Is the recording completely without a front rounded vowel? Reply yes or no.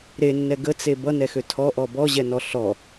no